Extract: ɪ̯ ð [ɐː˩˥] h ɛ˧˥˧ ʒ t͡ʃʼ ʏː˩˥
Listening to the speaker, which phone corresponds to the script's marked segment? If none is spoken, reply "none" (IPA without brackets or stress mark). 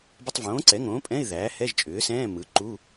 æː˩˥